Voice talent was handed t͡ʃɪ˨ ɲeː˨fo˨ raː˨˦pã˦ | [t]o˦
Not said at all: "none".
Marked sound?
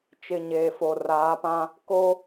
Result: k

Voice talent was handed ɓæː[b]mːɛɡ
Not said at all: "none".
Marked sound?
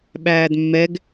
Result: d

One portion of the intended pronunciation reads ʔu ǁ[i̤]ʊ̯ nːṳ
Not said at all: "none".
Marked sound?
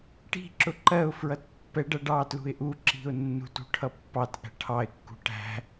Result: i̤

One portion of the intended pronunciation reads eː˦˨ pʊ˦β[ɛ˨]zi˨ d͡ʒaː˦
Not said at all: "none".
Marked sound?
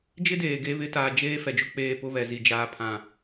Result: ɛ˨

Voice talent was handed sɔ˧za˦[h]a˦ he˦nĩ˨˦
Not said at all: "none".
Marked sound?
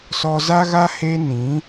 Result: ɣ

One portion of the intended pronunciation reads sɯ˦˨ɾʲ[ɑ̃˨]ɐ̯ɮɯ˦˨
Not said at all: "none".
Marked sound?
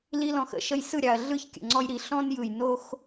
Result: ɑ˨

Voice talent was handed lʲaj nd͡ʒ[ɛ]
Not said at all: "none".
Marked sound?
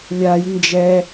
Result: ɛ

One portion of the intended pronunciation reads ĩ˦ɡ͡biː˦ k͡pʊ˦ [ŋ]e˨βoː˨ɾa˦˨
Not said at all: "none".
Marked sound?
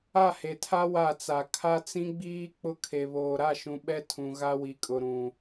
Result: kʰ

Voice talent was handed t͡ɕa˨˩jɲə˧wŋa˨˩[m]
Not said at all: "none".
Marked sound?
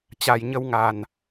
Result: n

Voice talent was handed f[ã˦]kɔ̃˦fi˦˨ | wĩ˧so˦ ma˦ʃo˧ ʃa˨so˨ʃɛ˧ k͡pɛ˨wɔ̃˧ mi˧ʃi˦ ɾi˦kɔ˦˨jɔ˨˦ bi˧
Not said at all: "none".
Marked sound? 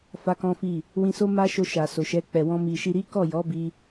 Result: a˦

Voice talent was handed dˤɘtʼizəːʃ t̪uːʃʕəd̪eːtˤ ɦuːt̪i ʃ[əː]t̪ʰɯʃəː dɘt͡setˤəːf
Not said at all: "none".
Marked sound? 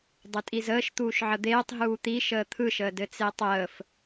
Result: əː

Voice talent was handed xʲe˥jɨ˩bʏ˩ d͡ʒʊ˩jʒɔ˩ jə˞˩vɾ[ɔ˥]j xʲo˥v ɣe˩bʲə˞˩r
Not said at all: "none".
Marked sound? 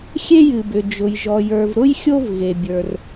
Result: ʊ˥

